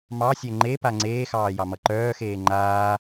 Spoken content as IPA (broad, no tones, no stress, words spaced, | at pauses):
mɑsʲɛ ŋ͡ǃepa ŋ͡ǀeːxɑːjɑmʌ ǃœːxeː ŋ͡ǃaː